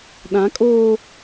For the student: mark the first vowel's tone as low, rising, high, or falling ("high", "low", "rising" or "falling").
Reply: rising